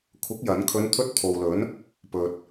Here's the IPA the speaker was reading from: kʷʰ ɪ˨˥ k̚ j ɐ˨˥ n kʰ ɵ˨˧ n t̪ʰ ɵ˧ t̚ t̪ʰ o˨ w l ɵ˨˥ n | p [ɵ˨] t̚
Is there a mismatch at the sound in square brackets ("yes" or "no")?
no